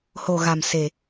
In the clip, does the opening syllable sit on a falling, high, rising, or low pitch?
low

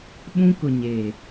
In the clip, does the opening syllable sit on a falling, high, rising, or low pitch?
high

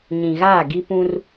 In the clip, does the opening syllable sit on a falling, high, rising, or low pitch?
low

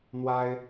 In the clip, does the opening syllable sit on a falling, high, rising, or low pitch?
high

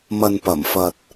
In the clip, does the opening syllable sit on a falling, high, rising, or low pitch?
low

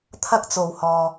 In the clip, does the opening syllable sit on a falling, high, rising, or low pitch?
high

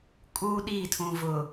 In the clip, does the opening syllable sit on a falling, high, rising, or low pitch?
high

